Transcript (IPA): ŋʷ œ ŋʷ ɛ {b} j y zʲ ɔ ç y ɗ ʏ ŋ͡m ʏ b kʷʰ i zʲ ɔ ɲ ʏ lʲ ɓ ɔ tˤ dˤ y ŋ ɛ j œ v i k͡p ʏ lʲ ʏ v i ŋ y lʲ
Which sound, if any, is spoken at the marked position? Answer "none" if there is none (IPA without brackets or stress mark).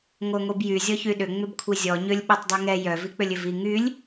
b